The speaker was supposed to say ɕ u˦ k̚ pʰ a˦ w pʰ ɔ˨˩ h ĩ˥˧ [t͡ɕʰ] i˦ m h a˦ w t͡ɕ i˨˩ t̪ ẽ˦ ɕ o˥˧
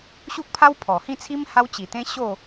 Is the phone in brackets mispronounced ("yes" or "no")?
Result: yes